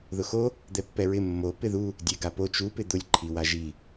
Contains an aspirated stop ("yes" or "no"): yes